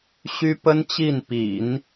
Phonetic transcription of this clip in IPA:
ɕ y˥ p ə˥ n t͡ɕ i˥˩ n p ḭ˨˩˦ n

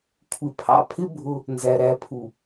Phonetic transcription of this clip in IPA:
kʷʰ ɪ˨ pʰ ɑ̰˨ pʰ ɪ˦ bʱ ʊ˦ | n z æ˨ ɾ æ˨˦ pʰ u˨

